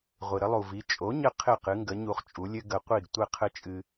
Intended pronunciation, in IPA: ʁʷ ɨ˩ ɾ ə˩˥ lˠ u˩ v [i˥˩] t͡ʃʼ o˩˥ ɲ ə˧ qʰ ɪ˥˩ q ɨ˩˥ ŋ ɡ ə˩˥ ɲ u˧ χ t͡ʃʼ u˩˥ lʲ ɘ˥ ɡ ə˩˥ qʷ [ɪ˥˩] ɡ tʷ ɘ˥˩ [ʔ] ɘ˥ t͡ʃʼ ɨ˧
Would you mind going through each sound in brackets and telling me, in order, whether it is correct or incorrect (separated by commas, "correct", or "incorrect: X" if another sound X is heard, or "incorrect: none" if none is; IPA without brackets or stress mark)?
incorrect: i˩˥, incorrect: i˥˩, incorrect: qʰ